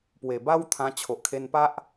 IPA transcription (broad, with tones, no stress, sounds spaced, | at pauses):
p w e˨˩ b a˦ w t̪ʰ ã˧ t͡ɕʰ o˨ ʔ kʰ e˧ n p a˦ ʔ